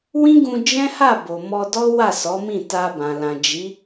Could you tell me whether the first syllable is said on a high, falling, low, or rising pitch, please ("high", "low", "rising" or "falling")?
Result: high